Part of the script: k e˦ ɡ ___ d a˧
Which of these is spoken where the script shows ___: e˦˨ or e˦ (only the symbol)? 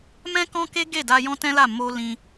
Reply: e˦˨